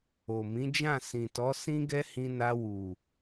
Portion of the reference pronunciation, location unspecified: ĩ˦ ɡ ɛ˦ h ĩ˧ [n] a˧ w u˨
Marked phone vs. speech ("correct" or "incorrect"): correct